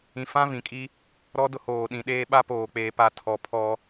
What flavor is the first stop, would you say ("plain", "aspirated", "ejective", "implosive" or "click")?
ejective